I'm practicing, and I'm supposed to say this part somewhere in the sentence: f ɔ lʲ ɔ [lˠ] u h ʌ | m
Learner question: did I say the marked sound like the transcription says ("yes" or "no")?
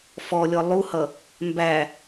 yes